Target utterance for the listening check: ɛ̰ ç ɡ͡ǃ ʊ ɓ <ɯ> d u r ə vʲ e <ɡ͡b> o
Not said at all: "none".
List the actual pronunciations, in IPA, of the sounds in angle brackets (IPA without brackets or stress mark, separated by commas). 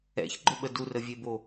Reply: ə, b